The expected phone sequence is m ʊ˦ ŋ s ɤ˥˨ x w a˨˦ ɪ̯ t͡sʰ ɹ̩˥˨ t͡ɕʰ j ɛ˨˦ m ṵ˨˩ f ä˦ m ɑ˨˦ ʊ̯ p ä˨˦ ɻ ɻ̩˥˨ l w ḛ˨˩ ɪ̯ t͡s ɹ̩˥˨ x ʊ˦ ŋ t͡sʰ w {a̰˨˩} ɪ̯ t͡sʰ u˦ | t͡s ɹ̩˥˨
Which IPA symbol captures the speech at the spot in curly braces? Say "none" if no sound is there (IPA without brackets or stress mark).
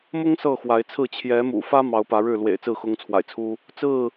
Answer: a̰˨˩